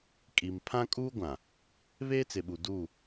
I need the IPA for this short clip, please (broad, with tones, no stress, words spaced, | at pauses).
kʼi˨m pʰã˦kʼuː˦ ɡʷã˨ | βeː˦t͡sɪ˨ɓu˨duː˦˨